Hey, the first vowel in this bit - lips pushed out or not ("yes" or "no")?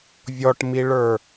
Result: yes